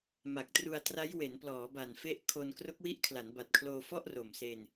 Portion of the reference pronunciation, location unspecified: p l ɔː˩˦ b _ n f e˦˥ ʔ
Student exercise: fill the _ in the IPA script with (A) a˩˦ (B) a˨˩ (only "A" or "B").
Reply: B